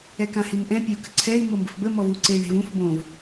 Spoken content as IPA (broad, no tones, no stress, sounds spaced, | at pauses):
ɛ k ã h i n ʔ ɛ̃ pʲ e u̯ k ə̤ ǀʰ ɛ i̯ m o m b ə̤ f b ə m ɔ v u ǀ e i̯ ɳ e̤ v ũ f b õ v